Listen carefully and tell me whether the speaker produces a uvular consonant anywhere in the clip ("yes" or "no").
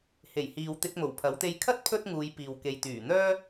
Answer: no